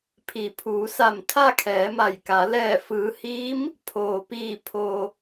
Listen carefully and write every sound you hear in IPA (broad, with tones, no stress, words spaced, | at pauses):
pʰi˩˧pʰuː˩˧sa˧˩m t̪ʰa˥˨kʰɛː˩˧ma˧˩jka˩˧ lɛː˧˩fɯː˩˧hiː˧˥m | pʰoː˩piː˧˩ pʰo˩